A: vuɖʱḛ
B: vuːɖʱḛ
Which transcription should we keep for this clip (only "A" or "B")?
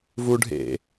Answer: A